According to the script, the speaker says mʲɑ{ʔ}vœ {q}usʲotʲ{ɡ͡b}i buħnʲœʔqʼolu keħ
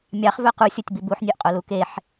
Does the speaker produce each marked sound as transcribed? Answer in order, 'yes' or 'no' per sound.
no, yes, no

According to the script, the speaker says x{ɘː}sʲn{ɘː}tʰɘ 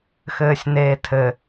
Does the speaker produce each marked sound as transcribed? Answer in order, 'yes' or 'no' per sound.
yes, no

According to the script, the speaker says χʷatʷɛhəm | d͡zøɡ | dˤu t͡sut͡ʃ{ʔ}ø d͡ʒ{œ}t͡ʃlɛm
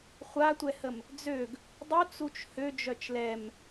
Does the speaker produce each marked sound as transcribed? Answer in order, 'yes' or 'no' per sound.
no, yes

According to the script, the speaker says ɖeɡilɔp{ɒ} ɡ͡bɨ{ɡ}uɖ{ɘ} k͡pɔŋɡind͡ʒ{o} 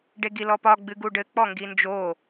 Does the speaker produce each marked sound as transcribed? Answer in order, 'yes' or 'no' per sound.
yes, yes, yes, yes

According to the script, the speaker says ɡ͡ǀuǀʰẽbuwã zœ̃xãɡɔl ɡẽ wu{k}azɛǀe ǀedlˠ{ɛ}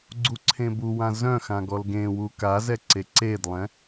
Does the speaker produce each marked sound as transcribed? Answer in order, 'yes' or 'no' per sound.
yes, no

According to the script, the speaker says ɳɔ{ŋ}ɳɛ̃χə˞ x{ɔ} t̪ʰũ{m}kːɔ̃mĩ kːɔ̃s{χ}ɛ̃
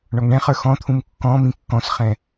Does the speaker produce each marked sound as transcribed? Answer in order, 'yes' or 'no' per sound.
yes, no, yes, yes

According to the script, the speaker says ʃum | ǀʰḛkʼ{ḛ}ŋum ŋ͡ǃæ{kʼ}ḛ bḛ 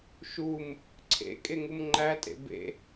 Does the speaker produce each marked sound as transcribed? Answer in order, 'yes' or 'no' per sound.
no, no

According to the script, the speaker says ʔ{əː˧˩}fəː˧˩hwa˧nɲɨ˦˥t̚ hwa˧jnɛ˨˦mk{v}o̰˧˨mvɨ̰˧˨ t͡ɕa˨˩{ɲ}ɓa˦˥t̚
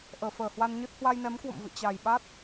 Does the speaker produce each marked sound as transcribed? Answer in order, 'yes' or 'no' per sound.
yes, no, no

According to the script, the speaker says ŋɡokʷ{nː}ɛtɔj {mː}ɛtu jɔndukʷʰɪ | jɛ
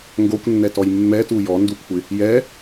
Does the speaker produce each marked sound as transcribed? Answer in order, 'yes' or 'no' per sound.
yes, yes

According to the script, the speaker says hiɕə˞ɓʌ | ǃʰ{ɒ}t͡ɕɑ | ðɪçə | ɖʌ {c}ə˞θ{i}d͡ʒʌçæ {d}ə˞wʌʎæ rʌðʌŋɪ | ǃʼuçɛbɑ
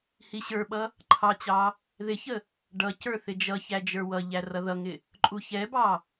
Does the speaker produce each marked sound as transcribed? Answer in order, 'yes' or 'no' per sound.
no, yes, no, no

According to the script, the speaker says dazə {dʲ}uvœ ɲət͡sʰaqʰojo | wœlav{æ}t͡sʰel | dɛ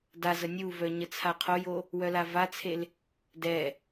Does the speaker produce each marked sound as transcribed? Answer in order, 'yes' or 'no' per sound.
no, no

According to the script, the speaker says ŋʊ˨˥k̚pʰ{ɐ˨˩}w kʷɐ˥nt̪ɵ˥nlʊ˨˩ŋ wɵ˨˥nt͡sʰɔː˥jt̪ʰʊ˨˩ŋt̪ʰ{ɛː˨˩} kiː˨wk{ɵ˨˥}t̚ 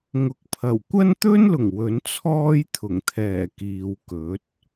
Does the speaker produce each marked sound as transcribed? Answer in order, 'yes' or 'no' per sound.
yes, yes, yes

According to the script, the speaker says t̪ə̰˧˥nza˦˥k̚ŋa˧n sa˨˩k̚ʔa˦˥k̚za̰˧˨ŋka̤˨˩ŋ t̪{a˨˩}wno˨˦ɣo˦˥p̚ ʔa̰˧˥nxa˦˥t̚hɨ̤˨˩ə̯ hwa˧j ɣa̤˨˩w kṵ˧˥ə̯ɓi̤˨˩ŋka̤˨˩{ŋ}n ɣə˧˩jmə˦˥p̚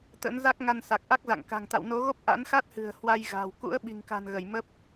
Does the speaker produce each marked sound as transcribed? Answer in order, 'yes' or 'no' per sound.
no, no

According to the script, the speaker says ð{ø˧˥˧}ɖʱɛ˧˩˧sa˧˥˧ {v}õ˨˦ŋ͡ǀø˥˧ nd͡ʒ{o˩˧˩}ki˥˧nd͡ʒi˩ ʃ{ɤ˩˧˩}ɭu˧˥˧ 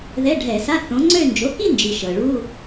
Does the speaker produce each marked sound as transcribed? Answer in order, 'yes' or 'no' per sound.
no, no, yes, no

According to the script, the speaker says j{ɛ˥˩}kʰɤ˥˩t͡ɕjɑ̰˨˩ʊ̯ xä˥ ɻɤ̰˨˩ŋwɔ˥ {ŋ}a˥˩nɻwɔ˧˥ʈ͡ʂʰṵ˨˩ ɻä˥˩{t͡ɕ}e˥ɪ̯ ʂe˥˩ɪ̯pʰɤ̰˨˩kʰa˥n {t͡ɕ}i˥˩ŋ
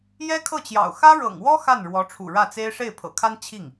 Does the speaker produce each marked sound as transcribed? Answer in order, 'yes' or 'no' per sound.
no, no, no, no

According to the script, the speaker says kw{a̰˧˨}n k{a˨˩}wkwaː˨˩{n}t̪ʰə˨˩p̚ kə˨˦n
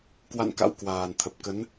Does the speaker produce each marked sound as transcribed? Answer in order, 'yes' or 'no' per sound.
yes, no, yes

